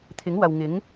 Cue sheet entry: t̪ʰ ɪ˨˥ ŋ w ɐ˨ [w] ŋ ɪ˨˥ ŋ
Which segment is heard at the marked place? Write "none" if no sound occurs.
w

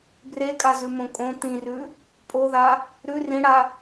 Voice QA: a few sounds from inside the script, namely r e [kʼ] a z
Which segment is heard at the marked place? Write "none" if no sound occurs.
kʼ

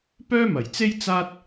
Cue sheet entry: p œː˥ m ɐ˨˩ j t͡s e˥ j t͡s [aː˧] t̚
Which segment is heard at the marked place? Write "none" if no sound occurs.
aː˥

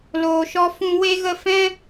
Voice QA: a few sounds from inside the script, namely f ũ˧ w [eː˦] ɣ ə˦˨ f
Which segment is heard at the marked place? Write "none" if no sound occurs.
e˦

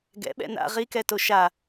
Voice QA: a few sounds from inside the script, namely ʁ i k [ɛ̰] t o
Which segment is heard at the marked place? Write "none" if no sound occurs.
ɛ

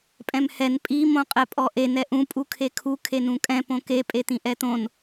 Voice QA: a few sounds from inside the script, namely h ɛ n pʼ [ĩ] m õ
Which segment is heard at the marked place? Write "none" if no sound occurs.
i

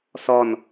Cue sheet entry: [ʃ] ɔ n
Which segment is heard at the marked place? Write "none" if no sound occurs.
s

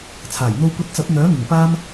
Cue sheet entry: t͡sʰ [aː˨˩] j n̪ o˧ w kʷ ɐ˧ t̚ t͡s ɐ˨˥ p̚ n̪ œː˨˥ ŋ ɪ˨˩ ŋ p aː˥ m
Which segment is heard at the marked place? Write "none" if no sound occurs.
aː˨˩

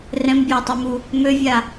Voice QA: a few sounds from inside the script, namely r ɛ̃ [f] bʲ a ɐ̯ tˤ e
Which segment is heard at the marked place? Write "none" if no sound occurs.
m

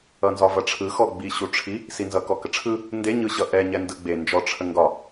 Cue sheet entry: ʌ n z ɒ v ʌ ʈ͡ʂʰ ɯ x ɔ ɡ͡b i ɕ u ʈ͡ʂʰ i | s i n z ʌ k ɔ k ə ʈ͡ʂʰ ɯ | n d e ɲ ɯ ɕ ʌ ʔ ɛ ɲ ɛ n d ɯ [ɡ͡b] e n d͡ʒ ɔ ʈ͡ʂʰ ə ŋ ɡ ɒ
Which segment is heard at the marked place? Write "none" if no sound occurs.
ɡ͡b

